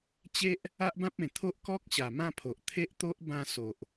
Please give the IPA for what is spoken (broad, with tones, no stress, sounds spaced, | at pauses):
t͡ɕ e˦ ʔ | a˦ ʔ b ã˦ p̚ ẽ˨˩ t̪ʰ o˦ ʔ k ɔ˦ k̚ ɕ a˨˩ m ã˥˧ pʰ o˨ ʔ t̪ʰ e˦ ʔ t̪ o˦ ʔ b ã˥˧ s o˨ ʔ